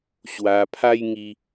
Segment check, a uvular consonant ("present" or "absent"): absent